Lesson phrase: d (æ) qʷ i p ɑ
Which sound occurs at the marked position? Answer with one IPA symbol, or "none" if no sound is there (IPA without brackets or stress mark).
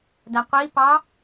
æ